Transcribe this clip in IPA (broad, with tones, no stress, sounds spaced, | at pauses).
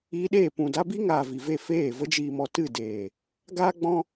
iː˧ ɗ eː˦˨ p ũ˨ d a˧ b i˦ ŋ aː˨ v i˨ v e˦˨ f eː˦˨ v ə˧ d͡ʒ iː˨ m ɔ˨ t ɨ˦˨ d eː˨ | ɡ aː˦ ɡ͡b ɔ̃˦